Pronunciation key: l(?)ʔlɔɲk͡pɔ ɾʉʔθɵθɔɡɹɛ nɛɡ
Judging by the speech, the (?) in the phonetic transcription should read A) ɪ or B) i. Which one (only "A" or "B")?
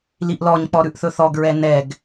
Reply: B